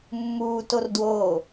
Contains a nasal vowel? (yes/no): no